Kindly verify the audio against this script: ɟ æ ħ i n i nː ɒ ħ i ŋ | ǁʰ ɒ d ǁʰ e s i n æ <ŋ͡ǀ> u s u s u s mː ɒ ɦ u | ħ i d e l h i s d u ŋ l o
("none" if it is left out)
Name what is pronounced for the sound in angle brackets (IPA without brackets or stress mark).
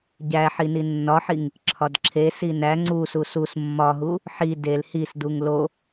ŋ͡ǀ